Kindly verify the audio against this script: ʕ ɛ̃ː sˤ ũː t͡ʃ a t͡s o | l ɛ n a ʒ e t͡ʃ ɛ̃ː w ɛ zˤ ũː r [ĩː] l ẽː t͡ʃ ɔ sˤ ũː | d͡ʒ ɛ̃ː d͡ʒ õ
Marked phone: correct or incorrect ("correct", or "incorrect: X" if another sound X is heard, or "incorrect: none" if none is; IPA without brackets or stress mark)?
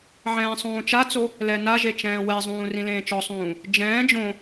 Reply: incorrect: ĩ